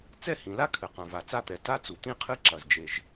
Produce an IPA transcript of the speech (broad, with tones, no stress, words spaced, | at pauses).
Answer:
t͡sɛ˥hĩ˩la˥kʰɘ˩ qã˩va˩t͡sa˥t̪ɛ˩ ta˥ t͡su˩t̪ĩ˥qʰɨ˥ ǁɐ˩z d͡ʒe˩ʒ